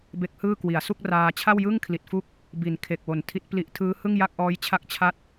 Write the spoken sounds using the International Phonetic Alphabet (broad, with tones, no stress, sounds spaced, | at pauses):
b e˦˥ k̚ h ɯː˥˩ k w i˩˦ a̯ s u˥˩ k̚ r aː˧ t͡ɕʰ a˥˩ w j ɯ˥˩ ŋ kʰ l i˨˩ t̚ f u˥˩ k̚ | b i˨˩ n kʰ e˨˩ k̚ w o˩˦ n tʰ i˦˥ t̚ p l i˦˥ ʔ tʰ ɯː˦˥ h ɯ˥˩ ŋ j a˥˩ k̚ ʔ ɔː˦˥ j t͡ɕʰ a˦˥ k̚ t͡ɕʰ a˦˥ t̚